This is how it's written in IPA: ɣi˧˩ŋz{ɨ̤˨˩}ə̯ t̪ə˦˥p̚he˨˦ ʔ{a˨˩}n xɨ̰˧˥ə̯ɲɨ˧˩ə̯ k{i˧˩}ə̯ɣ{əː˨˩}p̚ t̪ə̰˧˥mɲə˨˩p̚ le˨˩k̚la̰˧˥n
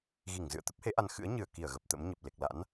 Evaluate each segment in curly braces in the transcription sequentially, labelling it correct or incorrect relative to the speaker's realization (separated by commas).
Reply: incorrect, incorrect, correct, incorrect